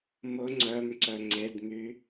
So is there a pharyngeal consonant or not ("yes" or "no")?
no